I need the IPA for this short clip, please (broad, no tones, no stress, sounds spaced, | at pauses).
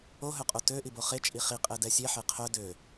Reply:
o ɦ œ qʼ o t ø ʔ i b o χ e t͡ʃʼ i χ i qʼ ɛ d ɛ sʲ e ħ e qʰ œ d ø